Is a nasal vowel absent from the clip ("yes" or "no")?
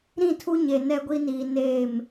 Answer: no